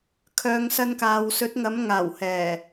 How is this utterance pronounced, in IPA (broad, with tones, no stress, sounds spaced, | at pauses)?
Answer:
kʰ œː˨˧ ŋ s ɐ˧ n k aː˨ w s ɵ˨˥ t̚ ŋ ɐ˨˥ m ŋ aː˨˩ w h ɛː˨˩